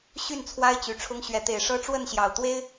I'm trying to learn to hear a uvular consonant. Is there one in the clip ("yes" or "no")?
no